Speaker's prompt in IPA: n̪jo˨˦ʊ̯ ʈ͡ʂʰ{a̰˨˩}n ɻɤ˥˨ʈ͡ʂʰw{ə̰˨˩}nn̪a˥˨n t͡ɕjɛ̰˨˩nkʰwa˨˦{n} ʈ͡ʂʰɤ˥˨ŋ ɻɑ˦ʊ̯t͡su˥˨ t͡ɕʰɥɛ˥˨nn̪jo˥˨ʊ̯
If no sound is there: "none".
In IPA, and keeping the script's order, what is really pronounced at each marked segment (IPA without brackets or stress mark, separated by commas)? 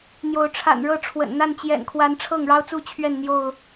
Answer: a̰˨˩, ə̰˨˩, n